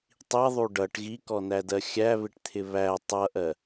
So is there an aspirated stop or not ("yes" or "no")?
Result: yes